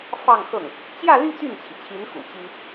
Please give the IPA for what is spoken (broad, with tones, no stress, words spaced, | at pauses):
fɑ˥˧ŋxɤ˥˩ŋ | t͡ɕjä˥˧ly˥˧ t̪y˥˩nt͡ɕʰi˩t͡ɕʰi˧˥n xṵ˨˩t͡ɕi˥